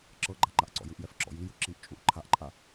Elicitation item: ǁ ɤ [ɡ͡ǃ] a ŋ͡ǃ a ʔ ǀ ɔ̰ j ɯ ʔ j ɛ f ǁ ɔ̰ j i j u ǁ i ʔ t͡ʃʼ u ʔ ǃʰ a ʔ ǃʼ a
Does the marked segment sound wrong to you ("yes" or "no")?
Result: no